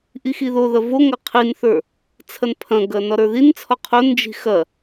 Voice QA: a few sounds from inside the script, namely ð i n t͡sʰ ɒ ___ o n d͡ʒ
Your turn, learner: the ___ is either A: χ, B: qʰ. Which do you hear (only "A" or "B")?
B